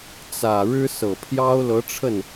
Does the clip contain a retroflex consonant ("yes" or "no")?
yes